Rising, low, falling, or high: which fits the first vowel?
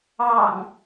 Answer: low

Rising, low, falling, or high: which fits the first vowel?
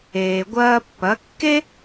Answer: low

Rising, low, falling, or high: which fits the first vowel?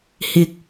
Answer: low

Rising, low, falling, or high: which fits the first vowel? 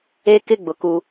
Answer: high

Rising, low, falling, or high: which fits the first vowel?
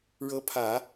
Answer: rising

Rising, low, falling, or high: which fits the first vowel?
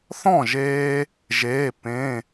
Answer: falling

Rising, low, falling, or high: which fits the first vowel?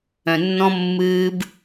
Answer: low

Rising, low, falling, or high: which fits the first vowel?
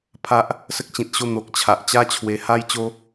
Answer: high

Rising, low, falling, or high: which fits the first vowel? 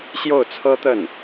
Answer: falling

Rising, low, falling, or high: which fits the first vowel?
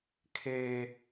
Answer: high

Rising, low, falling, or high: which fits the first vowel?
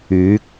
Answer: rising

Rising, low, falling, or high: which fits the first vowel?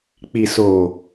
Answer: low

